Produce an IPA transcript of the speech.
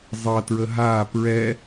zˤ ʌ t ɹ ə ɦ a p ɹ ɛ

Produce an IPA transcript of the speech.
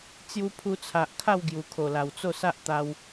t͡s j u˧ pʰ u˧ t͡sʰ a˨ ʔ kʰ a˥˧ w ɡ j u˨˩ kʰ o˨˩ l a˨˩ w t͡s o˥˧ s a˦ ʔ t̪ a˦ w

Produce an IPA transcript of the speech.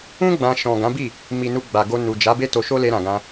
ũ˦ ɡ͡b ã˧ ʃ ɔ̃˨ ɡ ã˨˦ b i˦˨ | m i˨ n u˧ ɡ͡b a˨ ɡ o˧ n u˨ d͡ʒ a˨˦ b e˦ t o˧ ʃ o˦ l e˧ ɾ ã˨ ɡ ã˧

